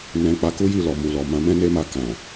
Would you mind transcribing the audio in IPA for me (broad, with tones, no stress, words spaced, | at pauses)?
nɛ̃˨ k͡pa˨˦ku˦ji˦˨lɔ˨ mu˨lɔ˨ mã˨˦mɛ̃˦ne˦ma˦˨ kã˨